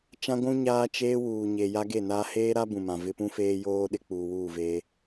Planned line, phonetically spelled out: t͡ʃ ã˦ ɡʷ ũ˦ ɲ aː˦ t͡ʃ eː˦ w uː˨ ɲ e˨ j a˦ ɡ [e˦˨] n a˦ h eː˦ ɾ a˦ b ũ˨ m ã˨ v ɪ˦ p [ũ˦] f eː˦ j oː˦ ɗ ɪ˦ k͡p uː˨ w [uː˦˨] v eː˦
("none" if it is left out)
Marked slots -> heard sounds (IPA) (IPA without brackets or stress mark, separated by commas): e˦˨, ũ˦, uː˦˨